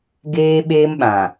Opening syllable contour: high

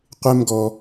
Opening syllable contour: high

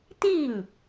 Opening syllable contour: falling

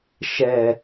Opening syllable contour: low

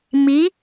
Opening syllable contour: rising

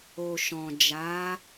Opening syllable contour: low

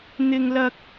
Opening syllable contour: high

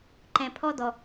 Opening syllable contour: low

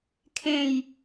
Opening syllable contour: falling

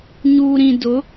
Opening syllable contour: low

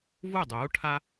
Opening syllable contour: falling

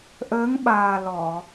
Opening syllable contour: rising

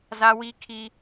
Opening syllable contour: high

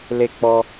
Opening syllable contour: falling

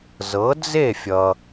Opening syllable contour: rising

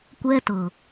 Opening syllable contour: high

